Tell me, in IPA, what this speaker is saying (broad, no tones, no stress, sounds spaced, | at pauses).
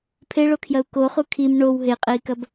pʰ e ɭ o kʰ j ɐ u̯ k o χ u kʰ i m ɳ o w ɦ e qʼ e i̯ k ɐ b